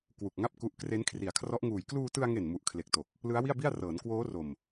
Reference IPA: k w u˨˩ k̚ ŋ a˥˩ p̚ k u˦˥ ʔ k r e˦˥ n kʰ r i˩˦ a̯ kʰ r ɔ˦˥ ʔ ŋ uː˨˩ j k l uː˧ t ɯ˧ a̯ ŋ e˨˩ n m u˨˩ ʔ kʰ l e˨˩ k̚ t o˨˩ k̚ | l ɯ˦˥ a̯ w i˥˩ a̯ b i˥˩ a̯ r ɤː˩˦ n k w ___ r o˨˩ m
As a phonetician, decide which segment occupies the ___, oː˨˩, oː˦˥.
oː˦˥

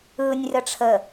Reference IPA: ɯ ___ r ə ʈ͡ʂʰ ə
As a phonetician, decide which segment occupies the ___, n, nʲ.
nʲ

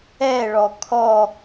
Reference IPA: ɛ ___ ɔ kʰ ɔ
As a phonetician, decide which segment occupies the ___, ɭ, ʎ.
ɭ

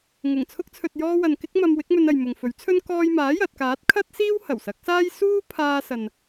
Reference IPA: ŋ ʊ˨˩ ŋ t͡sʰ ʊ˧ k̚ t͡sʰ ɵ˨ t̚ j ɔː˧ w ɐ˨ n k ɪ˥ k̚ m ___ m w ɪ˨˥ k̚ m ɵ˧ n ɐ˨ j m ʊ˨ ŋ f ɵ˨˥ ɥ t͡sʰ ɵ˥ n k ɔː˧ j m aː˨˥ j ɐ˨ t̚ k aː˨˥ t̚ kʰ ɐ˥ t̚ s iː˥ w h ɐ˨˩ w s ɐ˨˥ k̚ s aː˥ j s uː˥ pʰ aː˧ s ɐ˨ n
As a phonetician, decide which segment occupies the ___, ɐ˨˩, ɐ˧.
ɐ˧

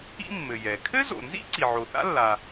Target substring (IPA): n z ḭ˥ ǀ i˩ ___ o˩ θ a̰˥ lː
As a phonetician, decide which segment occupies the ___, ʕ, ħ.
ʕ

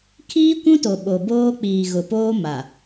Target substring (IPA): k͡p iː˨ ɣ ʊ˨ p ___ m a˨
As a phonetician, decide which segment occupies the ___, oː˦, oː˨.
oː˦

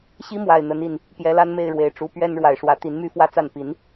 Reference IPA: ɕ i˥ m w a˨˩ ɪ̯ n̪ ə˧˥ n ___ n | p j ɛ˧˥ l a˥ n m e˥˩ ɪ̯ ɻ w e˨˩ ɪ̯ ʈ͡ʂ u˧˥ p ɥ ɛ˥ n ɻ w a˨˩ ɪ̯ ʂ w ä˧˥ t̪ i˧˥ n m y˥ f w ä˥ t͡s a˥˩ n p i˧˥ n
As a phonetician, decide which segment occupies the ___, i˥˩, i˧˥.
i˥˩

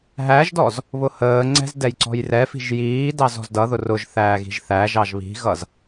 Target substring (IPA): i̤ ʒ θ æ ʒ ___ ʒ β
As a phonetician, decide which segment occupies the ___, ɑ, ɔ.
ɑ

